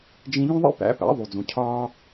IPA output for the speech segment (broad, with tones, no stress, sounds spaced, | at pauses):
d͡ʒ ĩ˧ ʎ ũ˥ ðˤ ḭ˥ p æ̰˩˥ p æ̰˩˥ ðˤ u˩ d͡z ũ˩ cʰ ɒː˧